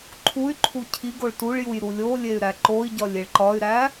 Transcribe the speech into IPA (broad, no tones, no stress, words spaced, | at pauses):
ǃʰuy̯ǃʰu cʰiɡoɭ tuɭjuj ɾulʲolʲey̯ ɾæǃoi̯ɟɒlʲ eɭǃɒy̯ɾæ